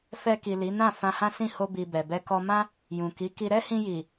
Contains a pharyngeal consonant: no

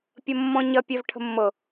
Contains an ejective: no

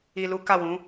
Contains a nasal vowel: yes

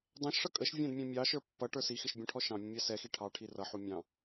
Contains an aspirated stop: yes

